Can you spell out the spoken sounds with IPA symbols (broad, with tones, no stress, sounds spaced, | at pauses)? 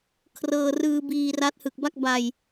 kʰ r ɤː˧ r ɯː˧ b iː˧ r a˦˥ t̚ h ɯ˨˩ k̚ b a˥˩ k̚ b a˧ j